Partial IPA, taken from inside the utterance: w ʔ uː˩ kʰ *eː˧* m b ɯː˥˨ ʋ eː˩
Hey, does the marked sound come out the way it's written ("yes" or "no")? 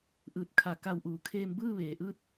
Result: yes